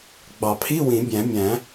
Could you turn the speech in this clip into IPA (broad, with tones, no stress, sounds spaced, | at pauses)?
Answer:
ɡ͡b ɑ˨˩˦ pʰ i˧˥˧ w ĩ˨˩˦ bʲ æ̃˨˩˦ mʲ æ̃˨˩˦